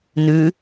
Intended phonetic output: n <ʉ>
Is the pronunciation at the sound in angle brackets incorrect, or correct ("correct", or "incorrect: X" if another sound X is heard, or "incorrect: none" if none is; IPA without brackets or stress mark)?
correct